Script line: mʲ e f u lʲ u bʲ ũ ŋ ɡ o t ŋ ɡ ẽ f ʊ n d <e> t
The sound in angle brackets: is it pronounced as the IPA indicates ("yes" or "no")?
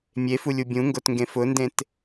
no